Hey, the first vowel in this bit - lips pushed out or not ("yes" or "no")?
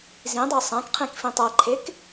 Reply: no